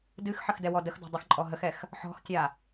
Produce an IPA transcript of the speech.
d ɨ x ħ ə x d ɛ w ɔ d ə x d ɔ̤ dˤ ə x ǃʼ ɔ ɦ ə x ɛ x | ħ ɔ̤ x tʲ a

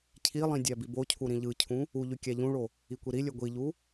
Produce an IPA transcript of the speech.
cʰ i lˠ ĩ dʲ æ b i b o cʰ u ɾ ĩ ʎ ɯ cʰ ũ | u ʎ y kʲ æ ʎ ũ ɭ o | i kʷ i ɾ i lʲ ø ɡʷ i ʎ u

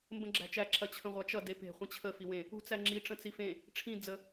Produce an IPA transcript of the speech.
m b ə̃ ɡ͡ǁ æ̤ t͡ʃ æ ǁ ɐ t͡ɕʰ ə̃ ʁʷ a t͡ʃ ʌ d e p e̤ χʷ ĩ t͡ɕʰ ə f i w ẽ | ṳ t͡s æ ŋ͡ǁ i ʈ͡ʂ ə̃ t͡s i f ẽ | ʈ͡ʂʰ ĩ d͡z ə

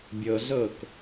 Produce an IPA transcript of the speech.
bʲ ɤ ɮ ɤ k

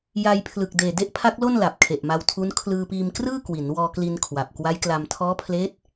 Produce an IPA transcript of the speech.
j a˧ j pʰ l ɯ˨˩ k̚ d eː˨˩ d e˦˥ ʔ pʰ a˦˥ k̚ l o˥˩ n l a˨˩ p̚ kʰ e˨˩ ʔ m a˧ w tʰ u˦˥ n kʰ l ɯː˧ p iː˧ m k r ɯː˥˩ k w i˩˦ n w ɔː˧ k l i˧ n kʰ w a˨˩ p̚ k w a˦˥ j k l a˧ m tʰ ɔː˦˥ pʰ l eː˦˥ t̚

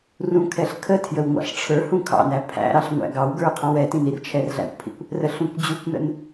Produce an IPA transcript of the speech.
r ũ kʰ ɛ ɬ kʰ ə tʰ j ə w ŋʷ ɑ̰ ɬ ʈ͡ʂʰ ə˞ h ũ kʰ ɑ̰ n æ pʰ æ̰ ɾ ɑ ɬ ŋʷ æ̰ ɡ ɑ w ɡ ə˞ qʰ ɑ̃ w ɛ t ĩ n i r t͡ʃʰ ɛ r ɮ æ̰ kʷ pʰ ḭ kʷ | r ə ɬ ũ kʷ d͡ʑ u kʷ n ə̰ n

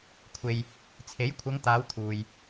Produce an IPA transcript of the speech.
kʷʰ e˨ j | t͡sʰ e˨˥ j kʷʰ ɐ˨˧ ŋ t̪ aː˨˧ w t̪ʰ uː˨ j

